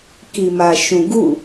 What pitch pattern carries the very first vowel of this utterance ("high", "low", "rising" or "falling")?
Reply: low